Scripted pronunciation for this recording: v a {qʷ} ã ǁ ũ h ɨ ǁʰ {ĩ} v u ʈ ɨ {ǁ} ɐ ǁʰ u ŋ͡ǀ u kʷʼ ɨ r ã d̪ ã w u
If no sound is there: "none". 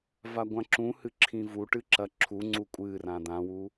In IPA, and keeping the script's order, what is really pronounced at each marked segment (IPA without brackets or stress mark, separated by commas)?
ɡʷ, ĩ, ǁ